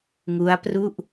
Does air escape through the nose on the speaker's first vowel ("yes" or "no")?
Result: no